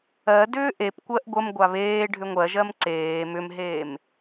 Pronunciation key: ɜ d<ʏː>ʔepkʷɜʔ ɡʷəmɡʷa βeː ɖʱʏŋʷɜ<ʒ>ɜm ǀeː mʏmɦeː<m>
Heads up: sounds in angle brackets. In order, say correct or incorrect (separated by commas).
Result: correct, correct, correct